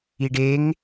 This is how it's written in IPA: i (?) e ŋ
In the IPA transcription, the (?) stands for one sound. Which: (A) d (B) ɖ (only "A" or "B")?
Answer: B